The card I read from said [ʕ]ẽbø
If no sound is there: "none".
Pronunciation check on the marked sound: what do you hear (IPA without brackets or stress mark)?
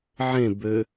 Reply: ʕ